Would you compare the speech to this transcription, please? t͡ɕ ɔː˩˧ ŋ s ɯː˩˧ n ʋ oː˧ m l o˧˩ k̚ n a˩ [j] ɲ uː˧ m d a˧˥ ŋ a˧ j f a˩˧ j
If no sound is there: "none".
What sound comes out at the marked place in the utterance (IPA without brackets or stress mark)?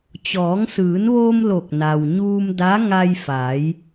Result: w